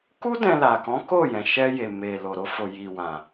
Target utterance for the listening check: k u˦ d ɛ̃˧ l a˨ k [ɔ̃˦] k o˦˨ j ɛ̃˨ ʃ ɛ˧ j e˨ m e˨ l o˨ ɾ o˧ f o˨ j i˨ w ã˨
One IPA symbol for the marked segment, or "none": ɔ̃˨˦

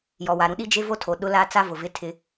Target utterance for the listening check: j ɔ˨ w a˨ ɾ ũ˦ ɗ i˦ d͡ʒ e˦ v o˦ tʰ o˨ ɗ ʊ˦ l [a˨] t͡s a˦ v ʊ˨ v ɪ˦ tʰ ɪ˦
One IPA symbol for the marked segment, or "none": a˦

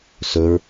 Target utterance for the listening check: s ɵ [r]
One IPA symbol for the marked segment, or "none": ɹ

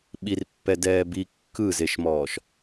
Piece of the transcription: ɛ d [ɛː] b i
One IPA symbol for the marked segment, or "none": ɛː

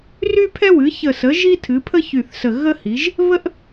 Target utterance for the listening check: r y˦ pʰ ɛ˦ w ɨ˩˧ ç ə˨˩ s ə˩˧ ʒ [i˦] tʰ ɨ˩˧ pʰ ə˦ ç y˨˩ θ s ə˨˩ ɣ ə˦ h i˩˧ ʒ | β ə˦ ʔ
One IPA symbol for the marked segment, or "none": i˦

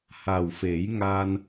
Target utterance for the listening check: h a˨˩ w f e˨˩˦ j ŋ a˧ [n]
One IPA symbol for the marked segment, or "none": n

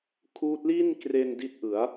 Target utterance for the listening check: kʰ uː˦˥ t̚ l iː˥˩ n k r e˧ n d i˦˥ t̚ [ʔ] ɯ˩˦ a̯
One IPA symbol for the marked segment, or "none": ʔ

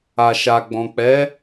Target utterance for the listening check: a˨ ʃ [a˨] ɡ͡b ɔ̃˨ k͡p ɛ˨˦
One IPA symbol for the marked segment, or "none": a˨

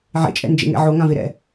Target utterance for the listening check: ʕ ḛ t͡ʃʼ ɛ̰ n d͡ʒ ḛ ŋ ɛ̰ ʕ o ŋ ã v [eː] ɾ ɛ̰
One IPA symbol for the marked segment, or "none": e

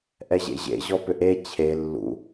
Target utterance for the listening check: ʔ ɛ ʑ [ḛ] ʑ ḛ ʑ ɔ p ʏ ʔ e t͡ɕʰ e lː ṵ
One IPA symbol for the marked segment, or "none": ḛ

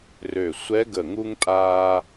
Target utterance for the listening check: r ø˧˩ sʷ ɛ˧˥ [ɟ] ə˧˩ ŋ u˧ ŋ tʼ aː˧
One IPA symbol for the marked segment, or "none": ɡ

